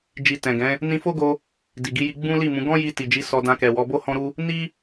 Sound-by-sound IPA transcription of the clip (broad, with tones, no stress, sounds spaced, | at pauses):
d͡ʒ i˨ t ɛ̃˨ ɡ ɛ̃˨˦ | n ĩ˧ f o˦ ɡ o˧ | d i˨ ɡ i˨˦ j i˧ ɡ͡b ũ˦ l i˦˨ m ũ˨˦ ɡ ɔ̃˦ j i˧ t i˨ d͡ʒ i˨˦ s ɔ˧ d ã˧ k ɛ˨ w ɔ˨˦ b o˦ h ɔ̃˦ ɾ u˦ | n i˦